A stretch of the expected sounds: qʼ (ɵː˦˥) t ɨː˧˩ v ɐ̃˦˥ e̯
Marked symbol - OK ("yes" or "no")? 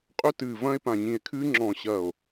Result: no